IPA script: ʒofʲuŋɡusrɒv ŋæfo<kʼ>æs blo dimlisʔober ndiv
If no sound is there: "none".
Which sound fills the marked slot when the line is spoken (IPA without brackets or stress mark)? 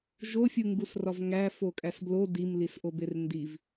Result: kʼ